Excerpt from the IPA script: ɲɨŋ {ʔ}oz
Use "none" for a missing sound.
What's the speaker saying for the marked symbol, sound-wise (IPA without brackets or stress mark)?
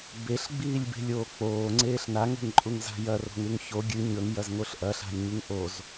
ʔ